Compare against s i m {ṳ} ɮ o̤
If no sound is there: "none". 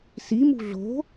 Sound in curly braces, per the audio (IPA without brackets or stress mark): ṳ